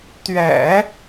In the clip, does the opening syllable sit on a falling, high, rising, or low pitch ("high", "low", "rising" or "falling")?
low